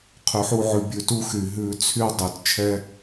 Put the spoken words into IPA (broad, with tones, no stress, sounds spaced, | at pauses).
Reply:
qʰ y˨ ħ u˧ ʕ ʉ˨ bʲ ʉ˨ t u˧ x y˨ ɦ ʉ˧ t͡sʰ y˦ dˤ y˨ t t͡ʃʰ ɛ˦